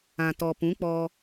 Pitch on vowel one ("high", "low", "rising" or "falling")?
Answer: low